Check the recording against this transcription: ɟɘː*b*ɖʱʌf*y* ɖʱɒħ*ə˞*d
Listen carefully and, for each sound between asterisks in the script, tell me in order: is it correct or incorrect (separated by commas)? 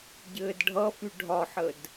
incorrect, correct, incorrect